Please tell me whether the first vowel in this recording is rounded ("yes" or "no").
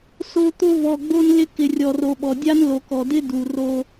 yes